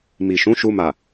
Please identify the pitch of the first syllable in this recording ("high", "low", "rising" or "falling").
low